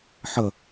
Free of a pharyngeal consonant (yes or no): no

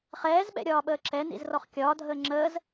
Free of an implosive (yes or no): no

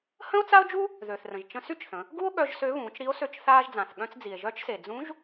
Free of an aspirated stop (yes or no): yes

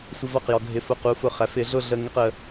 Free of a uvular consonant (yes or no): no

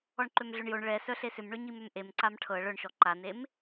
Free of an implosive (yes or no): yes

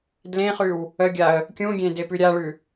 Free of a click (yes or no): yes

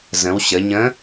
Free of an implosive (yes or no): yes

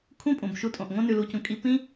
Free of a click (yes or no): yes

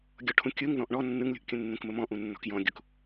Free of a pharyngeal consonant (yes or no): yes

